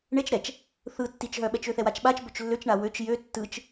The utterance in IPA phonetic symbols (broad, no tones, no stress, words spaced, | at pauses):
ɳet͡ʃ ɾɛt͡ʃ | θɯ tːit͡ʃɦœɓɛt͡ʃ øθɛwat͡ʃɓat͡ʃ bøt͡ʃlːøt͡ʃɳa wøt͡ʃ jø tːɯt͡ʃ